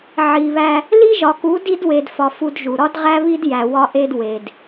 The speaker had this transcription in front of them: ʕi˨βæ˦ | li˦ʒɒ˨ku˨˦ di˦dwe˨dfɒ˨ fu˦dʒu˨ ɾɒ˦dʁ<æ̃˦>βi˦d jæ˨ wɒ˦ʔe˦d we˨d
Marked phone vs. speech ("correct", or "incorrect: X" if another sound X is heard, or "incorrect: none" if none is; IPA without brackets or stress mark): incorrect: æ˦